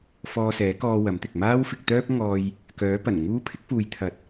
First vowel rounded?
yes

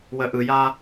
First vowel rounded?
no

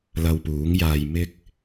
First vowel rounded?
no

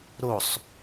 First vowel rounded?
yes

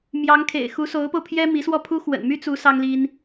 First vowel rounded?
no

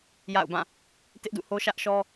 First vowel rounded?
no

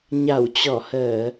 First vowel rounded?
no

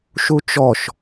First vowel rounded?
yes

